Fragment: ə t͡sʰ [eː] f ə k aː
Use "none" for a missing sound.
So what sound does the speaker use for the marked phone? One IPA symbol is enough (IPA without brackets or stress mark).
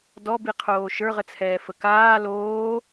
ɛː